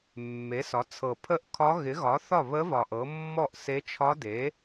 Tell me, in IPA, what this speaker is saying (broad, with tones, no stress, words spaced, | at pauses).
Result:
mːe˩˥sɒ˩˥t͡sʰɤ˨˩ pʰə˥˩ʔkʰɒ˧˥ ɣɪ˩˥ɣɒ˩˥ θɒ˥˩βə˧˥ vɒ˨˩ʔɤ˩˥ mːɔ˥˩ʔse˧˥ t͡ʃʰɒ˧˥de˩˥